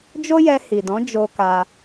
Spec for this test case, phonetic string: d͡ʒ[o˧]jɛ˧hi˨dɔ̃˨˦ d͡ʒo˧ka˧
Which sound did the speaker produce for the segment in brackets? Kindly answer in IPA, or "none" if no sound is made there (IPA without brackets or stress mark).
o˦